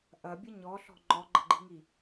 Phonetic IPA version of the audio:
ʔ ɐ bʲ ə ɲ ɔ ɬ ɔ̤ ŋ͡ǃ ɔ ɡ͡ǃ ə̤ ɡ͡ǃ i̤ ŋ i

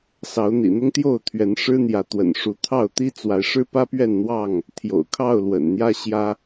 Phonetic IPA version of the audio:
s ɑ˨˦ ʊ̯ n̪ ḭ˨˩ n̪ ʊ˦ ŋ t̪ j o˥˨ ʊ̯ t̪ʰ ɥ ɛ˨˦ n ʂ ɻ̩˦ n̪ j ä˨˦ t̪ w ə̰˨˩ n ʂ u˨˦ t̪ʰ ɑ˥˨ ʊ̯ t̪ i˦ t͡s w a˨˦ ɪ̯ ʂ ɻ̩˦ p ä˦ p ɥ ɛ˥˨ n n̪ w ɑ˥˨ ŋ | t̪ʰ j o̰˨˩ ʊ̯ kʰ ɑ˥˨ ʊ̯ l w ə̰˨˩ n n̪ j ä˦ ɕ j ä˦

